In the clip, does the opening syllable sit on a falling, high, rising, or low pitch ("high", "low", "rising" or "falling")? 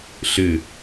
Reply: falling